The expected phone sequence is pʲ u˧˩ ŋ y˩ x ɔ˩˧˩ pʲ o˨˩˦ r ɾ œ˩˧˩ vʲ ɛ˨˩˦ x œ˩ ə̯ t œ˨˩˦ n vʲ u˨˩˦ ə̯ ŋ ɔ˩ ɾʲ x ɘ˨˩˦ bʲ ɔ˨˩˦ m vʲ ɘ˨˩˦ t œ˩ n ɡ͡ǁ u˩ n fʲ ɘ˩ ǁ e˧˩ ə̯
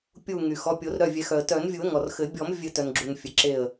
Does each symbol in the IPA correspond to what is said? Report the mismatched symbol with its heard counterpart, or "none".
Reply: ɾʲ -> r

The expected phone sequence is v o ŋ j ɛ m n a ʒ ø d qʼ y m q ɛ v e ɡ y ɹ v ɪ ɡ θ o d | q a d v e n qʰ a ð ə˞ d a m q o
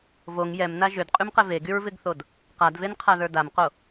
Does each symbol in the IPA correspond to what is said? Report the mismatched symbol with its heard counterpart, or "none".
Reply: none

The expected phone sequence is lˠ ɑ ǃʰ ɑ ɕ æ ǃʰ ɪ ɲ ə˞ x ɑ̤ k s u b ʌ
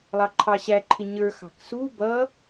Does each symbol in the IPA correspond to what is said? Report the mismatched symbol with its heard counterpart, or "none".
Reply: none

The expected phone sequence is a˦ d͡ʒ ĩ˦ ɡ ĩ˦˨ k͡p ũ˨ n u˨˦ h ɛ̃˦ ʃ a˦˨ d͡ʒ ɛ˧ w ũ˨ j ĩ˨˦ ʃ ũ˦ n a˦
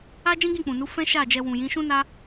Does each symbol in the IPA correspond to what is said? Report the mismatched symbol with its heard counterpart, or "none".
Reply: h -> f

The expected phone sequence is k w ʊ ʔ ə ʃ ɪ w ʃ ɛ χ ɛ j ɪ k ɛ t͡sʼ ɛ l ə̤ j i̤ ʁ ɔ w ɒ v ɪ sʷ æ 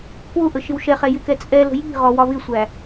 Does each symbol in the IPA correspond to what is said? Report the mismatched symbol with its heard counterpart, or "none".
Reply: none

